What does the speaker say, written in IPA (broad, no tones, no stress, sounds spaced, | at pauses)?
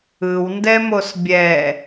ɯ w n d ɛ m o s bʲ ɛ